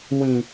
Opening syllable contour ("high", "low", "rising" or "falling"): high